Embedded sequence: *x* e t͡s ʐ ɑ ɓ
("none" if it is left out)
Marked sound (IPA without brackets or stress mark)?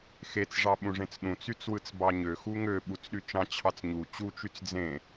x